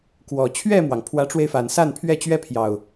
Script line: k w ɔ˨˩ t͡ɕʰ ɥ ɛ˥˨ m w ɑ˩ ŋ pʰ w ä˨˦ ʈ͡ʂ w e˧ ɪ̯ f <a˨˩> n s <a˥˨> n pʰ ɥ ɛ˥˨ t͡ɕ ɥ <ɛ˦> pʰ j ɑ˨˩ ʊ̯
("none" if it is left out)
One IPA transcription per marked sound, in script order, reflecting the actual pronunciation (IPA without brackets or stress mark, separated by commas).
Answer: a˨˩, a˥˨, ɛ˦